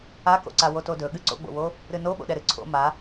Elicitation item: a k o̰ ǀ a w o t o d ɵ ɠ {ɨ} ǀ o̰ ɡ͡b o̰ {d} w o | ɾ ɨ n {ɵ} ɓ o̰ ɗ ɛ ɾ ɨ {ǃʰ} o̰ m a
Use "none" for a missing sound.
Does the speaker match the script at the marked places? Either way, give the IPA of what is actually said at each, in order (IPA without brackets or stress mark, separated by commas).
ɨ, none, o, ǀʰ